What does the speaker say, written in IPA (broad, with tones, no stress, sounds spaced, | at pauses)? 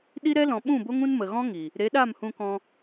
ɗ i˦ ɾ ɛ˦ l ɔ̃˨ ɓ ũ˦˨ b o˦ ŋ ũ˦ n m ə˨ ɣ ɔ̃˦ ŋ i˨ | ɾ e˨˦ ɗ a˦˨ m h ũ˧ k ɔ̃˧